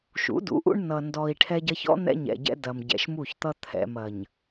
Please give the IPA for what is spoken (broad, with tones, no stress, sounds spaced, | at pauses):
ʃ ṵ˨˦ d ṵ˨˦ ʔ ṵ˦ ɳ n ʌ˨ n d ɔ˨ i̯ ʈʰ ɛ˦ ɟ ɐ˦ ç ɔ̰˦ n̪ ɛ̰˦ ɲ ɛ̰˨ ɟ ɛ̰˦ d ɐ˨ m ɟ ɛ̰˨ ʃ m u˦˨ ç t̪ ʌ˦ t̪ʰ ɛ̰˨ m ɐ˨ ɲ